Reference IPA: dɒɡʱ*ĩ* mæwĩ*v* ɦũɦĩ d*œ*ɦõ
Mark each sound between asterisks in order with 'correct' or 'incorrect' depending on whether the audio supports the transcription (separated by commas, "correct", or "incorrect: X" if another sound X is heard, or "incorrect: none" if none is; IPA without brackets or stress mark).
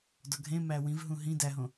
incorrect: ẽ, correct, incorrect: æ